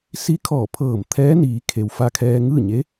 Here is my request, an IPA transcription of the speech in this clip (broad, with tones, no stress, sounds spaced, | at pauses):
s i˧˥ kʰ ɔː˧˩ pʰ ɤː˧˩ m t̪ʰ ɛː˧˥ n iː˩˧ kʰ e˩ w f a˧ kʰ ɛː˧ ŋ ɯː˥˨ ɲ e˧˥